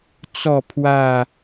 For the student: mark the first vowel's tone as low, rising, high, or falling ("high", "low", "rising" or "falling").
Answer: falling